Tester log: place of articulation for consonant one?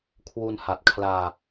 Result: velar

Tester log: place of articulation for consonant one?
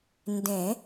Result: alveolar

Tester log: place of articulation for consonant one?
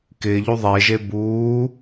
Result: velar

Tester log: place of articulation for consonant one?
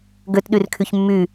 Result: velar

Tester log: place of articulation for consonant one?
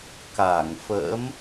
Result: velar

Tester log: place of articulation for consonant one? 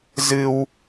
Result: alveolar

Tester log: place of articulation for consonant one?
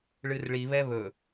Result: retroflex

